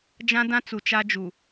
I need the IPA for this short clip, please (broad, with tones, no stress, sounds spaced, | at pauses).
d͡ʒ ã˦ d ã˦ t͡s u˨ t͡ʃ a˦ d͡ʒ u˨